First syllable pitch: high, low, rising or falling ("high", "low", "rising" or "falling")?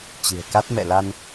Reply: low